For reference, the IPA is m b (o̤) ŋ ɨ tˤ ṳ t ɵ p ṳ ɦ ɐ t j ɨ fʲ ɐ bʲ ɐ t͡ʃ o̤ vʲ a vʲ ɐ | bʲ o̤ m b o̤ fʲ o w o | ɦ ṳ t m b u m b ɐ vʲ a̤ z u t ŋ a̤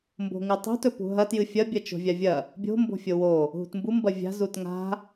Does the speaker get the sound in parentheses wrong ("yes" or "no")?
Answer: no